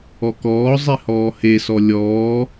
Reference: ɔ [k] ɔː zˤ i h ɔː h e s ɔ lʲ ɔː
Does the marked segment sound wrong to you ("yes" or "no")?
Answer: no